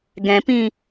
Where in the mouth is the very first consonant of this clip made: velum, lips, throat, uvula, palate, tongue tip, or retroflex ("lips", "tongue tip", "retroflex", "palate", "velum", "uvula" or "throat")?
velum